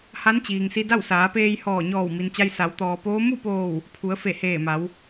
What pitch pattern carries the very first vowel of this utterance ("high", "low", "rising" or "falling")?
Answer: rising